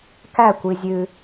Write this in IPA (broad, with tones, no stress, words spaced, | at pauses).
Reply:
kæ˥˨ kʷi˧zʲʉ˧